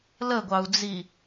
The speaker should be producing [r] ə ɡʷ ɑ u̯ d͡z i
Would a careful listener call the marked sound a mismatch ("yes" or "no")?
yes